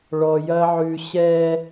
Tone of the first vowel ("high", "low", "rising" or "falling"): low